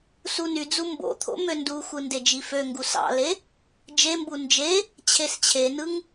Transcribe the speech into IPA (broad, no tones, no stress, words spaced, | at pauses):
sunyd͡zu mbo̰t̪ʰo̰ mønduxʷɯ nded͡ʒiføŋɡu sɑ̰le | d͡ʒembu nd͡ʒe | t͡ɕʰest͡ɕʰenɯŋ